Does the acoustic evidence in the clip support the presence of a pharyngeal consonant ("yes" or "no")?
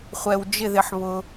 yes